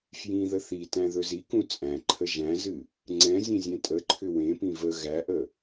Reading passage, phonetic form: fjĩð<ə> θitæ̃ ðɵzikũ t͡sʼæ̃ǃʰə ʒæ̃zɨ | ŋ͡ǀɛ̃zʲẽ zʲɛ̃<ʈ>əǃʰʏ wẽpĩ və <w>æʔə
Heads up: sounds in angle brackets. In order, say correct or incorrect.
correct, incorrect, incorrect

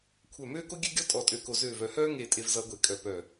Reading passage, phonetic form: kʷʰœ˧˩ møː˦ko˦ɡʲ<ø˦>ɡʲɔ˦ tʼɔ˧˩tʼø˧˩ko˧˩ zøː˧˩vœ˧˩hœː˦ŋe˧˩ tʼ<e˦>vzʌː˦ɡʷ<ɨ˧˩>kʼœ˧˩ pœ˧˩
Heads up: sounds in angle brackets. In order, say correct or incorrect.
correct, correct, incorrect

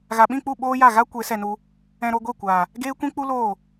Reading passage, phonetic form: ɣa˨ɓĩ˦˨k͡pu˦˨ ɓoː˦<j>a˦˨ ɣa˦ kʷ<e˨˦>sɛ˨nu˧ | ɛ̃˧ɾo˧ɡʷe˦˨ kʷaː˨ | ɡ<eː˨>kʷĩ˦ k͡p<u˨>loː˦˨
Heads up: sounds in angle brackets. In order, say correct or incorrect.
correct, correct, incorrect, incorrect

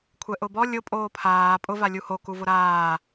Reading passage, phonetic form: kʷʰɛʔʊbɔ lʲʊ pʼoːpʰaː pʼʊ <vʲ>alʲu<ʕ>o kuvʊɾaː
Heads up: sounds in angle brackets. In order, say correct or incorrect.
incorrect, incorrect

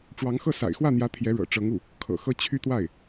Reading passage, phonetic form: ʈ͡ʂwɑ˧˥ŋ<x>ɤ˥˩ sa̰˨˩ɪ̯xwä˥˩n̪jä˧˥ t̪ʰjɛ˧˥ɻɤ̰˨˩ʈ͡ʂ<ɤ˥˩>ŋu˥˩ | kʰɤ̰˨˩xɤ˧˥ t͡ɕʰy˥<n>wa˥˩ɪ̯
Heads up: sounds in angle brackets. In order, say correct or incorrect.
correct, incorrect, incorrect

